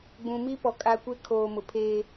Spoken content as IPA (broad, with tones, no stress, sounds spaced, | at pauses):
ɡ͡b ũ˨ m i˦ p ɔ˨ kʼ a˦ kʷ e˦ kʰ oː˨ m ʊ˨ pʰ eː˦